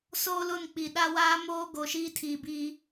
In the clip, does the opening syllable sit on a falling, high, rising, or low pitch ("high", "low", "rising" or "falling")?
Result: high